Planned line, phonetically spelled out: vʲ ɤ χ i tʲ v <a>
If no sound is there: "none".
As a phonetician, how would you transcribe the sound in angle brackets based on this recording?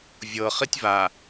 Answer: a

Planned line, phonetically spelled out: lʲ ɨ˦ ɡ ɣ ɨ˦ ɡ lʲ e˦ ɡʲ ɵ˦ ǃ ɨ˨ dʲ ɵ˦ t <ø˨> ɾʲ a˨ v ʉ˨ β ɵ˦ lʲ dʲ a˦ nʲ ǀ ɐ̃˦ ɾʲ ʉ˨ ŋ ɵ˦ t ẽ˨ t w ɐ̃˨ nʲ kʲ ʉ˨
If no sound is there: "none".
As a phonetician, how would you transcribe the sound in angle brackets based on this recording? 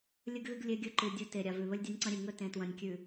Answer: e˨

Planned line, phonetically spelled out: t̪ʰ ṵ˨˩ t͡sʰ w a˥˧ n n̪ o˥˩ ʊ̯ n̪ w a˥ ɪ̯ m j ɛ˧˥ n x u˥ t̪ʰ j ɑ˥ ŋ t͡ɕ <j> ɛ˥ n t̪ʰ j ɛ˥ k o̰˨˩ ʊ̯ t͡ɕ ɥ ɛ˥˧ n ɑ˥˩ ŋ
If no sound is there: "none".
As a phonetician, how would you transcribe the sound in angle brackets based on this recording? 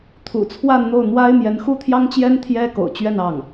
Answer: j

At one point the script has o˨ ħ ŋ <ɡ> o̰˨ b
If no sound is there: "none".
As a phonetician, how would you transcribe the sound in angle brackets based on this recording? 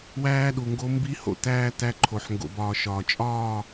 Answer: ɡ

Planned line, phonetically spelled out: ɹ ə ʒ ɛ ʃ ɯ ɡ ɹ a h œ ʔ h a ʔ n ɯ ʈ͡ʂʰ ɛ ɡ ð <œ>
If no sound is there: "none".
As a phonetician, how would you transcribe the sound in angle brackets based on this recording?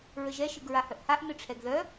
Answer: œ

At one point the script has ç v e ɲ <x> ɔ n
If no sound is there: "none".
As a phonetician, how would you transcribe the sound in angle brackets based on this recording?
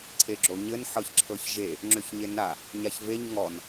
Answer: ŋ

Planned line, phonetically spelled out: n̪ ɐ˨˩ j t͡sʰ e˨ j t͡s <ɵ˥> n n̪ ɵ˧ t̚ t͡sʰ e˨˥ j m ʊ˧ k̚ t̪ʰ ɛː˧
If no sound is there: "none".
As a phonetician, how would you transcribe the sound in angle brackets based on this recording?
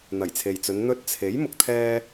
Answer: ɵ˨˧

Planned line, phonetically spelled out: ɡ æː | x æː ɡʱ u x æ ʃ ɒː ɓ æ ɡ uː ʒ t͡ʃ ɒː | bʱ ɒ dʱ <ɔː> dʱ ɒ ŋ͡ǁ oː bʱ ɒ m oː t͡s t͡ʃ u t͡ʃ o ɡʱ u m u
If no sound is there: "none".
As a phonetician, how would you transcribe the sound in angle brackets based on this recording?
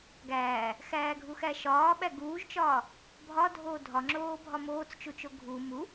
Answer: oː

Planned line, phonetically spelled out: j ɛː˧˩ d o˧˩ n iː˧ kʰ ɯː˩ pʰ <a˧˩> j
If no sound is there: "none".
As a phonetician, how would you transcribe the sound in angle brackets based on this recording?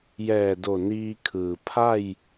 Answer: a˥˨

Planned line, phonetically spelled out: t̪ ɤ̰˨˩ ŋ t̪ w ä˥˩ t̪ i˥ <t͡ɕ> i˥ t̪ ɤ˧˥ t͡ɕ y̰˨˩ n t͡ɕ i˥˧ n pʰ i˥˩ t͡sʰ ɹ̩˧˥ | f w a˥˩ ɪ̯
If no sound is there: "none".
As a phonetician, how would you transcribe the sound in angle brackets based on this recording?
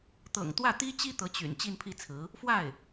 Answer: t͡ɕ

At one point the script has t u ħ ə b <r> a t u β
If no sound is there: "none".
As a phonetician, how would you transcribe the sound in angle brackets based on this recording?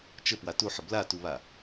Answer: l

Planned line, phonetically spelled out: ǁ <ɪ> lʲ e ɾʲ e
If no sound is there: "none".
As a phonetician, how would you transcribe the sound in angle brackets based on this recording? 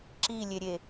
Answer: i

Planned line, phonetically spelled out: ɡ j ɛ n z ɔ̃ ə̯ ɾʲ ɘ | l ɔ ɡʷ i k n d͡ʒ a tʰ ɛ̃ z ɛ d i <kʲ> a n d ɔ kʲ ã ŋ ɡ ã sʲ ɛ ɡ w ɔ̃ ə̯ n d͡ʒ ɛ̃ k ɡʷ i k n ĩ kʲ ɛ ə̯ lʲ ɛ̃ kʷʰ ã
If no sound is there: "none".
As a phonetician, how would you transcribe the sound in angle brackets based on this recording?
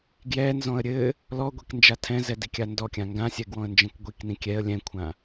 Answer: kʲ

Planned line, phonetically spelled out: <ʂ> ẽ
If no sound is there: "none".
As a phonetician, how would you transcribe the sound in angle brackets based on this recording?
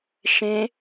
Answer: ʃ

